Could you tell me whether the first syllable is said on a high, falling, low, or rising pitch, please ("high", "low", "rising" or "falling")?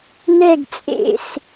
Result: falling